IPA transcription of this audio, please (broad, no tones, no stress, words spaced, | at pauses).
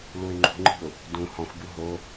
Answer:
luɪ̯ŋ͡ǃṳŋ͡ǃi̤ʊ̯ | dũ hɔ̃xʷbu ɦo